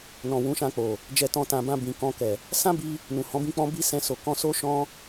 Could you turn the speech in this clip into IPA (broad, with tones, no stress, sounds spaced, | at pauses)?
n ɔ̃˨ w ũ˨˦ ʃ ã˧ k͡p o˨ | d͡ʒ ɛ˧ t ɔ̃˧ t ã˨ b ã˧ b ĩ˨ k ɔ̃˧ k ɛ˨ | s ã˦ b i˧ | n ũ˨ h ɔ̃˨˦ b ĩ˦ k͡p ɔ̃˦ b i˦ s ɛ̃˧ s o˨ k ɔ̃˧ s o˦ ʃ ɔ̃˦